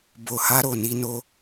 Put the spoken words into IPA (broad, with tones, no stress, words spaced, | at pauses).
bo˧ha˦ɾo˧ ni˦ no˦